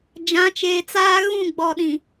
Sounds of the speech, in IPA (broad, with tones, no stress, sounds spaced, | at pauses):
d͡ʒ ã˨˦ t͡ʃ eː˨ t͡s aː˦ ɣ ũ˦˨ ɡ͡b ɔ˨ ɗ ĩ˨